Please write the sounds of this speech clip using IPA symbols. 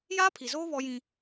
jaː˦pʰi˨zoː˦ βɔ˦jĩ˦

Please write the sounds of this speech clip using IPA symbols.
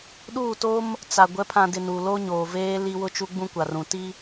ɗuː˦˨to˦m | t͡sa˨ ɡʷɛ˨˦pʰã˨dɪ˨ nu˨lo˦ ɲoː˨veː˦li˦ wʊ˦t͡ʃu˦ɡ͡bũ˦ kʷa˨rũ˨ti˦

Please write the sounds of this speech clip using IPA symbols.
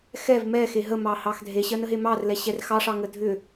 xɛv mɛxe ɦəmɑhɑx dʱeɕɜnəɦe mɑrlɛɕɛr xɑʂɑŋə dʱʏ

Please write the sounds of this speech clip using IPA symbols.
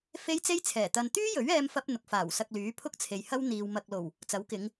fe˥jt͡se˥jt͡sʰɛː˨˩t̪ɐ˧n t̪yː˥jɵ˨˥ɥ ɛː˥mfɐ˥p̚ n̪ʊ˨˥k̚faː˨˩wsɐ˧k̚lyː˨˥ pʰʊ˥k̚t͡sʰe˨jhɐ˥w n̪iː˧wmɐ˧k̚lo˨˩w | t͡sɐ˨˥wkɪ˨˧ŋ

